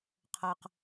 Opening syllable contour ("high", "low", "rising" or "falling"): low